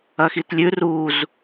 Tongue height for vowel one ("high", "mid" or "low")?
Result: low